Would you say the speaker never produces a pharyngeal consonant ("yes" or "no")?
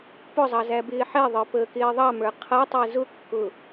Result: no